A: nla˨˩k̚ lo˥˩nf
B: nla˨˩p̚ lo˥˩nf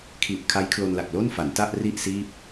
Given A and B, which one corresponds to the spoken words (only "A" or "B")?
A